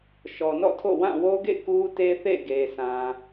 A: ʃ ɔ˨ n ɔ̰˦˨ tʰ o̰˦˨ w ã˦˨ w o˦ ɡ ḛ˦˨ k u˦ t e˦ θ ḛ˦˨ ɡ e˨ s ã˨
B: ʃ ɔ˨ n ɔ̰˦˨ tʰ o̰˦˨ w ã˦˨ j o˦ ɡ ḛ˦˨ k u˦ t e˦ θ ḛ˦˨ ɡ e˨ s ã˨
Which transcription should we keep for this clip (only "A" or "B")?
A